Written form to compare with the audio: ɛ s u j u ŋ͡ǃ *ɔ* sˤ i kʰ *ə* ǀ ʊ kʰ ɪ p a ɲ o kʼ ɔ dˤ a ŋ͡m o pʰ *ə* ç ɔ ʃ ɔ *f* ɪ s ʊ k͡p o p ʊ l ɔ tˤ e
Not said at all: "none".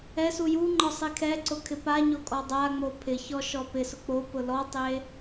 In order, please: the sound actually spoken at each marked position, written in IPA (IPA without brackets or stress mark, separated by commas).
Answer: ɔ, ɛ, ɪ, p